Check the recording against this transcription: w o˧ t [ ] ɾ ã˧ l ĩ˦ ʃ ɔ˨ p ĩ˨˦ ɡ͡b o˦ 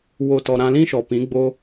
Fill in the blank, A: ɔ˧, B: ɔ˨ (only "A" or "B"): B